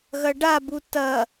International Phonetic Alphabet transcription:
ɣɐɖabu tɐ

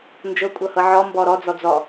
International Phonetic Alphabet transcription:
nd͡ʒɤkʷʼɤhɤ ʕɔmbɔ ɾɔd͡zɔ d͡zɔ

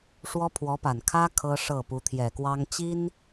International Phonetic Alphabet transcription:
ʂwɔ˥pʰwɔ˧˥pa˨˩n kʰä˥ kʰɤ˥ʂɤ˥˩ pu˧˥t̪ʰjɛ˨˩kwɑ˥ŋ t͡ɕi˥n

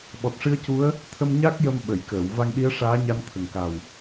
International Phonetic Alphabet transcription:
ɓɔ˨˩t̚ʂɨ˧˥ə̯cu˧˥ə̯ | t̪ʰə˧mɲa˦˥k̚ jə˧m ɓə˨˩˨jkəː˨˩˨w va˧ŋɗi˧˥ə̯ʂaː˧˥ɲa˧n t̪ʰə˨˩ŋka˨˩w

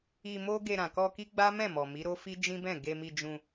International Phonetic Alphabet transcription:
i˧mo˦ ɡe˧ɾã˨ kɔ˧ ki˦ɡ͡ba˦ mɛ̃˦˨mɔ˨ mi˨˦ ɾo˦fi˦ d͡ʒĩ˦bɛ̃˦˨ ɡe˧mi˧d͡ʒũ˧

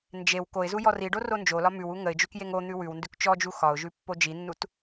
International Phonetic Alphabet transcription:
nd͡ʒew koɪ̯zu jɔriɖo rond͡ʒolɒ mʉwu ŋəɪ̯d͡ʒʉk jeŋon̪ʉ wʉwndʉk t͡ʃɔd͡ʒu xɒʊ̯ʒʉ pːod͡ʒinːut

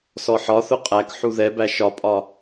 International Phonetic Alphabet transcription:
sɔħɒθʊ qʼæk ħuðɛbæ ʃɒpʼɒ

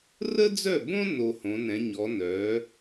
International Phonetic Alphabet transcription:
rə˥d͡zœ˥˩bõ˥ no˧hõ˩˥nɛ̃˩˥ ɲɔ˩˥ nœ˩˥

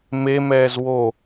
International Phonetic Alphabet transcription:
memɛːz wo

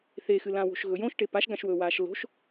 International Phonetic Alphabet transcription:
θexɨlã wo̤ʃɣɵjõʃ ʈepaʃɡãʃwɵː waːʃlo̤ʃ

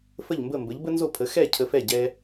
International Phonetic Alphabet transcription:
fə˥˩ʎmbə˥˩mbə˩˥ʎ bə˥nzo˥˩pʰə˩˥ xɛ˥˩ cʰə˧fɛ˥˩ ɟɛ˧

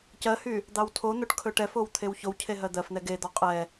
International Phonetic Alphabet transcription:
cɜhy | d̪ɑwtʰon̪oʈ kʰɵʈɛfow t̪ʰewçowcʰe ɦɜd̪ɜfn̪ɛ ɡed̪ɔ qʼɛ

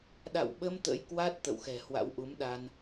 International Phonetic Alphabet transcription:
ɗa̰˧˨wɓə˧m t̪ə̰˧˥jkwa˦˥t̚ t̪ə̰˧˨wxɛ̤˨˩hwa̰˧˥w ʔu˨˦mɗa˧n

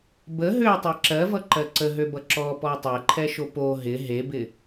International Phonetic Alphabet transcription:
bə ɦøtˤe ǁɜvʌǃɜ ǀəɦøbʌ ǁɔpɔ tˤɛǃʰɛʃo po ɦɪ ɦebɪ

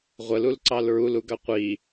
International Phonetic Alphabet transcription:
ʁʷəlulǀɑl ɹuluɡɑ qʷi

